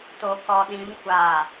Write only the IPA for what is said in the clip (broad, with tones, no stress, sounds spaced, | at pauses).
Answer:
t o˨ k ɔ˨ ɗ ĩ˨˦ m kʷ a˨